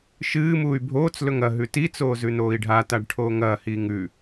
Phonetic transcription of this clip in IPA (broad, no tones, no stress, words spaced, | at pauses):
ʃɨː muːy̯bʱoːt͡slɵŋ ɐ ɦʉtit͡soː zʉnoːi̯ɖʱataɖ ʈʰoːŋɐːhiːŋ ʉ